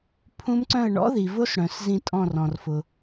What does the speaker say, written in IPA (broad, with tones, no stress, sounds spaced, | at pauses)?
pʰ ũ˦˥ m ǀ œ̃˥˧ ə̯ ɳ ɔ̰˦˥ ð i˨ v ʊ˦˥ s ɽ œ̃˨ s z ĩ˥˧ tʼ ɔ̃˥˧ r ɔ̃˨ r f ʊ˨